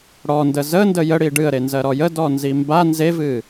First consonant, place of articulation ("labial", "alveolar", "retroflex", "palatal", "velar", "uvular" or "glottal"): retroflex